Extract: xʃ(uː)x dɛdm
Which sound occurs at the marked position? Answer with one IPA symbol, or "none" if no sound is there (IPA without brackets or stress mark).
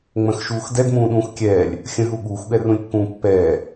uː